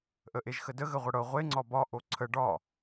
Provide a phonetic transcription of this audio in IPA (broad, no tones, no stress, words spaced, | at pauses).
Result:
ʔəʔeʒxədə ɣəʁʷəɽɤ ʁʷe ŋ͡ǀɒbɒ ʔoǀʰə ɖɒ